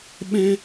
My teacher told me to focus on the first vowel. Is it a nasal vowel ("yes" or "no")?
yes